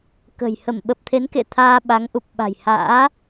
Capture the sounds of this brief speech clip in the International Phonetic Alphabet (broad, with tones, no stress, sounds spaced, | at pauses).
k ə̤˨˩ j h ə˧˩ m ɓ ə˨˩ p̚ t̪ʰ e˨˦ n k ḛ˧˨ t̪ʰ aː˧ ɓ a˨˦ ŋ ʔ u˨˩ p̚ ɓ a̤˨˩ j h a̰ː˧˥